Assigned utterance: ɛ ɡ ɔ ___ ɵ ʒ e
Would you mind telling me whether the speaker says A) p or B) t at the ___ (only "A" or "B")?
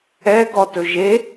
B